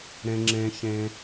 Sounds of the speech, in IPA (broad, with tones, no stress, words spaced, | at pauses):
ɾẽ˦ ŋ͡ǁẽ˦ çẽ˦